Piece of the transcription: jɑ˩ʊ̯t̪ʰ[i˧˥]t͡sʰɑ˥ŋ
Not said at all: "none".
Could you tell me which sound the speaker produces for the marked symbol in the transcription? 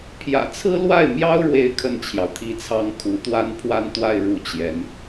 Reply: i˥˩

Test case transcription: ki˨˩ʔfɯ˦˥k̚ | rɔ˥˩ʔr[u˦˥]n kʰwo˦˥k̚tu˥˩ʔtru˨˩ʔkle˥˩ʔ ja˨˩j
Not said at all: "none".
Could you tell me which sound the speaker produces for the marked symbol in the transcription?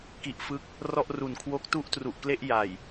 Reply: u˨˩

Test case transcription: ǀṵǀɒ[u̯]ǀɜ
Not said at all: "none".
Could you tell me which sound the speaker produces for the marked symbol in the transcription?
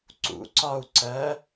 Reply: u̯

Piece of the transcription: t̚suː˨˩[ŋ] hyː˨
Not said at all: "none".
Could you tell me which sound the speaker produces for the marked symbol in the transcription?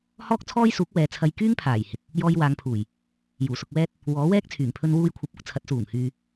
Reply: ŋ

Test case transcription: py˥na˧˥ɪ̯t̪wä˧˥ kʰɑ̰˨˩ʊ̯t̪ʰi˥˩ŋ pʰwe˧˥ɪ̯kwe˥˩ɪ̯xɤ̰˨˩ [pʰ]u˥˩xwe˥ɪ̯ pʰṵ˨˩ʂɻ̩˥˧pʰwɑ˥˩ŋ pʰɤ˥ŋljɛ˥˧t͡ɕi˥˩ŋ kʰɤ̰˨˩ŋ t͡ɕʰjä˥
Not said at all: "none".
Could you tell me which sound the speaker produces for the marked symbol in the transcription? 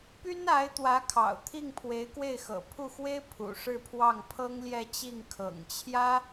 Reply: pʰ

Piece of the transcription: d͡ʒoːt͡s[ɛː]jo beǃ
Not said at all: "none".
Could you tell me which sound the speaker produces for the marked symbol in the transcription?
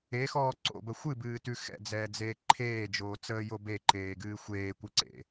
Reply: əː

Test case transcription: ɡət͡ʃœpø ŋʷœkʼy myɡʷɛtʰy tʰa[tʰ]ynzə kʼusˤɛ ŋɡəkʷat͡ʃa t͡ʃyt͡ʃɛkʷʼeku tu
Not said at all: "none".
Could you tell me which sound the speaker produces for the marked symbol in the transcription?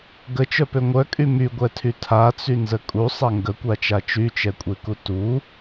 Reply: t͡s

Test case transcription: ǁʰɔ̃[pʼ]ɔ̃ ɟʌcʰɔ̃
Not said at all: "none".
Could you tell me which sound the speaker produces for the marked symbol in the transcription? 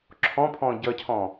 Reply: pʰ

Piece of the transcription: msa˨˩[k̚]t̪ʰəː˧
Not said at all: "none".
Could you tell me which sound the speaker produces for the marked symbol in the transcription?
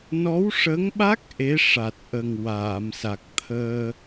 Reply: k̚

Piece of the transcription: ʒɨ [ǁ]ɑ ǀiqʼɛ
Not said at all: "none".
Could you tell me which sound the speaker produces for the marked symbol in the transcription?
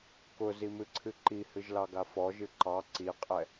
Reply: ǃ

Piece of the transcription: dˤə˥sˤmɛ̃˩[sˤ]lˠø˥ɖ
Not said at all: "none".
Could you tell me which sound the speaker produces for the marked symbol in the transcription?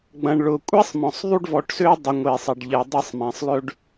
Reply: sˤ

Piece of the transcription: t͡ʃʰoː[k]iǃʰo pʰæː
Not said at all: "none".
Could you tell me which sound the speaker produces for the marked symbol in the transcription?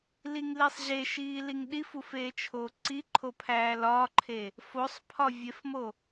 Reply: ǀ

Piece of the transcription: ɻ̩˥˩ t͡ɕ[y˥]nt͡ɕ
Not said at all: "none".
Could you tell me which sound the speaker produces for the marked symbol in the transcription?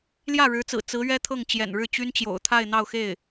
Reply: y˥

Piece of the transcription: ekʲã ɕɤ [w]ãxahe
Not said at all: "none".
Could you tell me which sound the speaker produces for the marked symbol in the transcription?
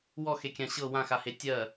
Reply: w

